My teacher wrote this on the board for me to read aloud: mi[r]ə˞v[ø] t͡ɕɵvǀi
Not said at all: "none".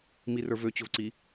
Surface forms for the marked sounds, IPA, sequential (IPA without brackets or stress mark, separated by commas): r, ø